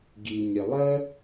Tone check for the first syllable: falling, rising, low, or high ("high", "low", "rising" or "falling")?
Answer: low